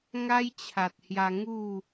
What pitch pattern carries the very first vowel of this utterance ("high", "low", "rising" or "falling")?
high